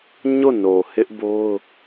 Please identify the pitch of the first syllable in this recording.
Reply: falling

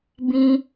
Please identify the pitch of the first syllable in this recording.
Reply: high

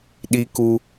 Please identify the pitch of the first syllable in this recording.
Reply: high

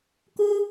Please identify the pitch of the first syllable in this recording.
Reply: high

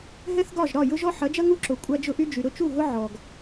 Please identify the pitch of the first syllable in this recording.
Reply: high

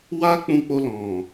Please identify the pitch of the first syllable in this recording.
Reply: high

